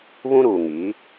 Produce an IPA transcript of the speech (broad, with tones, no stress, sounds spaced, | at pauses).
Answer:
β ũ˦ ɾ uː˨ ŋ i˨˦